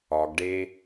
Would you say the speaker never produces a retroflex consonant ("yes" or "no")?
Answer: no